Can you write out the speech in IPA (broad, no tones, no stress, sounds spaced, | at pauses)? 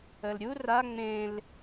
ə l ɾʲ u r a ŋ͡m ẽ l